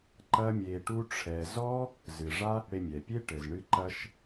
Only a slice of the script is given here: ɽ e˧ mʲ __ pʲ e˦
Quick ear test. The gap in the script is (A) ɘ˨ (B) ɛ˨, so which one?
B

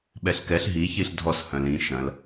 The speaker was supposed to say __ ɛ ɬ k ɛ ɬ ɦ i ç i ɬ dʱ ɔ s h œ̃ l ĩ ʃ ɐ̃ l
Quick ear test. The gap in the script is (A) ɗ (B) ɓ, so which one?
B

